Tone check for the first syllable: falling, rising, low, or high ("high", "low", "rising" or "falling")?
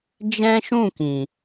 high